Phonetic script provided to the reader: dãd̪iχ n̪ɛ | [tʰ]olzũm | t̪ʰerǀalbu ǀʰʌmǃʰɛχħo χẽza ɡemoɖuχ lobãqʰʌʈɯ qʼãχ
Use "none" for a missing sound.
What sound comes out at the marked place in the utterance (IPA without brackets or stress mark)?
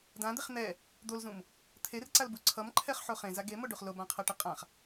d̪